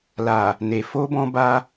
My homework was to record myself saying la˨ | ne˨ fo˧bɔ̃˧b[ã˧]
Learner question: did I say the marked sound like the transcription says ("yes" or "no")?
no